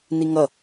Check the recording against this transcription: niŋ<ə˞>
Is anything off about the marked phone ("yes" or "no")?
yes